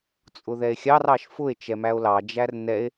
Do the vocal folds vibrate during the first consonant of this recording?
no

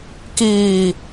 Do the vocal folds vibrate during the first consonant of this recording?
no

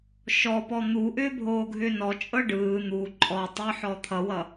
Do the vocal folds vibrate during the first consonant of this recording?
no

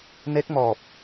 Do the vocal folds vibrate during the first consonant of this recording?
yes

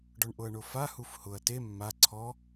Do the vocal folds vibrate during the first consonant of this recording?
yes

